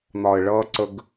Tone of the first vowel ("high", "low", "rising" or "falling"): low